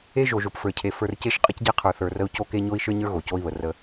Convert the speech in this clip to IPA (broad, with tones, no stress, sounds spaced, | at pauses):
e˦ ʒ o˨ ʒ o˨ p f ə˞˨ cʰ e˨ f ə˞˨ r c e˦ ʃ qʼ ə˦ c ɟ e˦ qʰ ə˞˨ θ ə˞˨ r ə˦ u̯ c o˦ k e˦ ɲ o˦ i̯ ʃ ə˞˦ ɲ ə˞˦ ɣ o˨ c o˦ i̯ β ə˨ r ə˦